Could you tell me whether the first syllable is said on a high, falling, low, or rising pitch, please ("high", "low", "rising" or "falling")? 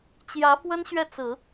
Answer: rising